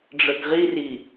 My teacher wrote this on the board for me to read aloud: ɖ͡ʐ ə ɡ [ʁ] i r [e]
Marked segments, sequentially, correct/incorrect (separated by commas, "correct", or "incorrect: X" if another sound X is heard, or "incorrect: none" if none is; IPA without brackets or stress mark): correct, incorrect: i